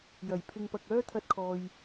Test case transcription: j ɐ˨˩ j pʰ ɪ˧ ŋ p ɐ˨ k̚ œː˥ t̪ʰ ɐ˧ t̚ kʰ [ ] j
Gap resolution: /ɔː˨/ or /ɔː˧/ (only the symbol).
ɔː˨